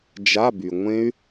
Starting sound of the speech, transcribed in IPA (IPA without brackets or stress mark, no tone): d͡ʒ